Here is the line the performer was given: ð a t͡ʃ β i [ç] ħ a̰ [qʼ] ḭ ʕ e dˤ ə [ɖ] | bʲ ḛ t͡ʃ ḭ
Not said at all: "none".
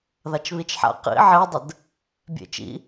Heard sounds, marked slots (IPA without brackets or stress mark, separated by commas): t͡ʃ, q, d